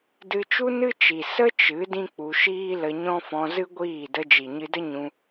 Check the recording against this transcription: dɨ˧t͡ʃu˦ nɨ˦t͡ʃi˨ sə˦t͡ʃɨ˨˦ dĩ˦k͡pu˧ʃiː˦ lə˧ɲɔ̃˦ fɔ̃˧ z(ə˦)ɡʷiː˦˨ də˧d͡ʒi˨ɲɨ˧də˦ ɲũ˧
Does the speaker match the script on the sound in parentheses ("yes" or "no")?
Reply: no